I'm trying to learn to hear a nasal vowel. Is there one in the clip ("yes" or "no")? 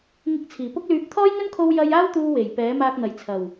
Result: no